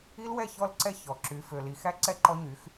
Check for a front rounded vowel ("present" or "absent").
present